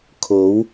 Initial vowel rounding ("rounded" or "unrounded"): rounded